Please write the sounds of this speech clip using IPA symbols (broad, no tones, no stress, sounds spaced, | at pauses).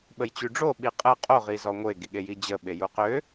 ɓ ə j t͡ɕ y ɖ͡ʐ o ɓ i qʼ ə qʼ o ʁ i z ɔ ŋʷ e ɡ i ɠ e j i d͡ʑ ə ɓ e j u q ø